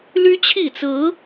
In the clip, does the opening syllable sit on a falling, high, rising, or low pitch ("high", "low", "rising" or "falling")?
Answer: high